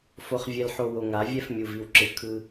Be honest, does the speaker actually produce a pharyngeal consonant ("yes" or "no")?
yes